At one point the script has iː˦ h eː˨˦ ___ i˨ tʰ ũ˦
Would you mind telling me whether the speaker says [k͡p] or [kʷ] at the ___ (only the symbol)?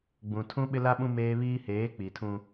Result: k͡p